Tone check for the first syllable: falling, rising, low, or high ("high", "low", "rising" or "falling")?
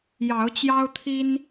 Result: rising